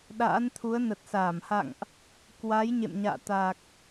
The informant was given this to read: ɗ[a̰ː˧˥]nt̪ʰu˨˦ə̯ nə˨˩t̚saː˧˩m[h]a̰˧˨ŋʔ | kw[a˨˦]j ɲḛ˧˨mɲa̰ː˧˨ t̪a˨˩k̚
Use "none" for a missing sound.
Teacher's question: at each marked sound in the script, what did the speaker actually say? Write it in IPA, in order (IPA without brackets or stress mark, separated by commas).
a̰ː˧˥, h, a˨˦